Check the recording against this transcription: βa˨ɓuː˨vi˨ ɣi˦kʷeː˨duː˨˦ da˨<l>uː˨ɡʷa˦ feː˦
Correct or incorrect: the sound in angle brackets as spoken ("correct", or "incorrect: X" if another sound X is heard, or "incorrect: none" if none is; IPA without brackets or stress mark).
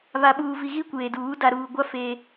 incorrect: ɾ